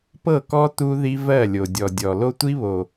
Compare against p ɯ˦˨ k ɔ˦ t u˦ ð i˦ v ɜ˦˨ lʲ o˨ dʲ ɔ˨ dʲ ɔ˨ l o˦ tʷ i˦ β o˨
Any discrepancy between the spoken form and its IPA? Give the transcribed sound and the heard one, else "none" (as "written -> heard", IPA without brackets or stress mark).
ɯ˦˨ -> ɤ˦˨